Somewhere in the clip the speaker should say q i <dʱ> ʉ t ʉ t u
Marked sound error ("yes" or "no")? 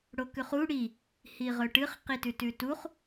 yes